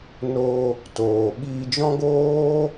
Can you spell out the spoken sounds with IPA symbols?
n o˧ | t oː˨ ɓ iː˧ d͡ʒ ɔ̃˦ ɡ oː˦

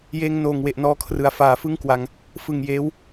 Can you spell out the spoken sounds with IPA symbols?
j eː˧ ŋ n oː˨˩ ŋ w e˨˩ ʔ n ɔː˧ kʰ r ɯ˩˦ a̯ f aː˩˦ f ɯ˥˩ ŋ k w a˧ ŋ | f ɯ˨˩ ŋ j eː˦˥ w

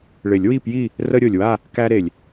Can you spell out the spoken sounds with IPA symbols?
ɭ ɪ˨˩˦ lʲ w i˥˨ p j i˥˨ | r ə˦ ɾʲ o˩ lʲ w a˥˨ | k æ˦ ɾ e˩ lʲ

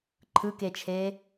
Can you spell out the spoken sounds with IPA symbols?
ǃʰ ɯ k e t͡ʃʰ e

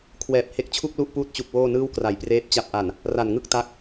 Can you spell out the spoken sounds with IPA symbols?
kʰ w ɛː˨˩ p̚ h e˦˥ k̚ t͡ɕʰ u˥˩ k̚ l u˥˩ ʔ p uː˦˥ t̚ t͡ɕ u˨˩ k̚ w oː˥˩ n ɯː˥˩ w k r a˩˦ j p r eː˦˥ p̚ t͡ɕ a˨˩ p̚ ʔ a˨˩ n | r a˨˩ n ŋ ɯ˥˩ k̚ t a˦˥ k̚

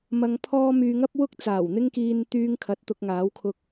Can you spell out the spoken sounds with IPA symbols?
m ɐ˧ ŋ pʰ ɔː˥ m yː˧ ŋ ɐ˥ p̚ w ʊ˥ k̚ t͡s aː˨˩ w n̪ ɪ˥ ŋ k iː˧ n t̪ yː˥ ŋ kʰ ɐ˨˥ t̚ t̪ ʊ˧ k̚ ŋ aː˨˥ w kʰ ʊ˧ k̚

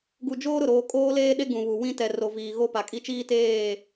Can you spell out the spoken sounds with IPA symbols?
ɡ u˨ d͡ʒ oː˦ ɾ ʊ˨ ɾ oː˨ kʼ oː˦ l eː˦ ɗ e˦ ɡ ũ˨ β u˨ w ĩ˦ t ɛ˨ r o˨ v iː˨ ɣ o˦ p a˨ kʼ i˦ t͡ʃ iː˦ t eː˦˨

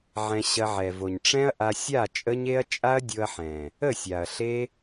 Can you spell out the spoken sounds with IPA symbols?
ʕ ɛ̃˧ ɕ ɐ˧ ʕ ɛ˨ v o˨ ɲ ʈ͡ʂ ɛ̃˦ ɐ̯ ʔ a˧ sʲ a˦˨ t͡ʃʼ ə˦ ɲ e˦ ɐ̯ t͡ʃʼ a˦ ɐ̯ dʲ o˧ ɐ̯ ħ ɛ̃˨ | ə˦˨ sʲ a˨ ɐ̯ ɬ e˦

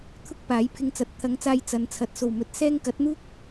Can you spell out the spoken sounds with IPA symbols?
t̪ʰ ʊ˥ k̚ p aː˨˥ j pʰ ɪ˧ ŋ t͡s ɐ˨ t̚ t̪ʰ ɐ˨˧ ŋ t͡s aː˧ j t͡s ɐ˨˧ n t͡sʰ ɐ˨˥ t̚ s o˨˩ w m ɵ˨˥ t̚ s ɛː˥ ŋ k ɐ˨˥ t̚ n̪ uː˥ k̚

